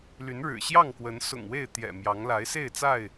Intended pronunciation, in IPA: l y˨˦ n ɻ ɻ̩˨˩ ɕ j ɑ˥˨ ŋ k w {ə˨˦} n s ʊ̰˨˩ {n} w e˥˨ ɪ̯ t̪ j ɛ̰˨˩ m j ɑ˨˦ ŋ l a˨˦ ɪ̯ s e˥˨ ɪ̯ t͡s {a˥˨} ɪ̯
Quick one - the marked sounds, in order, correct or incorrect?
correct, incorrect: ŋ, correct

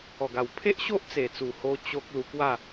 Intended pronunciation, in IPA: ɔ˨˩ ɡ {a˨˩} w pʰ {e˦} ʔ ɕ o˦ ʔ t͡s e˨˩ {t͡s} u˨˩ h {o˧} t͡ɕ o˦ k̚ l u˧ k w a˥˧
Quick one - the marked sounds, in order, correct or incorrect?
correct, correct, correct, correct

